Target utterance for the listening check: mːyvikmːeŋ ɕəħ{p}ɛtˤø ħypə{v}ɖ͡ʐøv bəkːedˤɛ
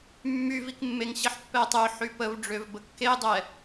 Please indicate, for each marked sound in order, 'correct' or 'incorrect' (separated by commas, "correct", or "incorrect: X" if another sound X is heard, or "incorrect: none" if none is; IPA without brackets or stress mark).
incorrect: pː, correct